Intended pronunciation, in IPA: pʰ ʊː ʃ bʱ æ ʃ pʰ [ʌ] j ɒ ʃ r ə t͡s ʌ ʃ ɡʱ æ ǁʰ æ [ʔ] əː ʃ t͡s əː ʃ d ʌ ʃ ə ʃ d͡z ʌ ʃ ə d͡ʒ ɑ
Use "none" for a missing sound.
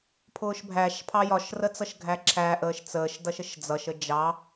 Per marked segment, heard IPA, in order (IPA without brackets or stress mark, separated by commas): ɑ, ʔ